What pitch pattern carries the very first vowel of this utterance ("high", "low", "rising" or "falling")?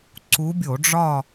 rising